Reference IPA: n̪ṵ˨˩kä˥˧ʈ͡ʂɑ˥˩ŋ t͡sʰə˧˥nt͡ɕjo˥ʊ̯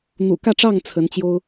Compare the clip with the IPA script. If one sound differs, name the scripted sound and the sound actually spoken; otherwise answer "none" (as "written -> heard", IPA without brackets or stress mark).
none